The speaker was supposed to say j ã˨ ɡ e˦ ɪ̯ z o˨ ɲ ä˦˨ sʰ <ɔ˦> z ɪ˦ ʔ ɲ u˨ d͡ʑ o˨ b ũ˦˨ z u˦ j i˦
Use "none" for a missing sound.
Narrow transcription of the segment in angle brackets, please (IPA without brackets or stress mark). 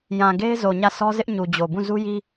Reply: ɔ˦